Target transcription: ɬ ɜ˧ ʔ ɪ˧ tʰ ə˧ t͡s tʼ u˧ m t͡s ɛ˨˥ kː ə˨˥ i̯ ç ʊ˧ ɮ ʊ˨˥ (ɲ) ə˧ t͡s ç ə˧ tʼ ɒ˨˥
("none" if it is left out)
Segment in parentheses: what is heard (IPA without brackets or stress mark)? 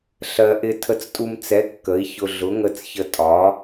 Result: ŋ